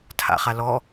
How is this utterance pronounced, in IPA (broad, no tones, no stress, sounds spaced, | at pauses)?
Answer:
tʰ a̰ χ a l ɔ